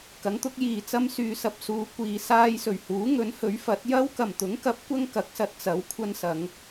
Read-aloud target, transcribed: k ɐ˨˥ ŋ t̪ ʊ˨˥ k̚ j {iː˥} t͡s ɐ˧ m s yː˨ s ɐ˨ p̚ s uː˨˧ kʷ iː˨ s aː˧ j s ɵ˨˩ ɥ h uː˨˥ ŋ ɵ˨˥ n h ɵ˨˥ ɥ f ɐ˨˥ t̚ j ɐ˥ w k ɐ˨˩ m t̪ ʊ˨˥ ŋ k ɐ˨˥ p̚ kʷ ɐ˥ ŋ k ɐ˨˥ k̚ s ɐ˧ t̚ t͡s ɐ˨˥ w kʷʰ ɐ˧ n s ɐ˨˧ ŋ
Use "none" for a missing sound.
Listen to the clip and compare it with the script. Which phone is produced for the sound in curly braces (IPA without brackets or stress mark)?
iː˨